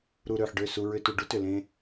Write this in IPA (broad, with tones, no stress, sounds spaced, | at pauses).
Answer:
ɾ u˨ ɾ ø˨ ħ ɖ ø˦˨ s u˨ ɹ ʏ˨ t u˨ ɖ u˦ t ʏ˨ l ẽ˦